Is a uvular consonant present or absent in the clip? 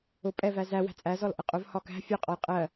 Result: present